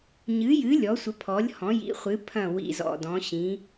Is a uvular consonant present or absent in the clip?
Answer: present